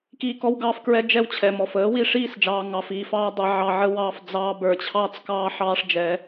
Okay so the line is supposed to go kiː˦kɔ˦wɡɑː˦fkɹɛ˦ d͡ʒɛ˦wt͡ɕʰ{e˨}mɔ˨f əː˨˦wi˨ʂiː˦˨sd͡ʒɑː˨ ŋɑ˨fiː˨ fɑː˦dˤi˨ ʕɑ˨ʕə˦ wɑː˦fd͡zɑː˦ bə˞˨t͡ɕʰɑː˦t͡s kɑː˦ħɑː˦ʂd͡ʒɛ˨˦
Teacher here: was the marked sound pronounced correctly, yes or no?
no